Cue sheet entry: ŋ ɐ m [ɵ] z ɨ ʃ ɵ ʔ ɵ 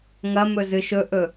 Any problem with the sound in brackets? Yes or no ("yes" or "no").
no